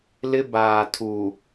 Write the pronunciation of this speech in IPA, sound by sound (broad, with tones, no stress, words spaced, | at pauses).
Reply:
lɪ˦ baː˨ tʰu˨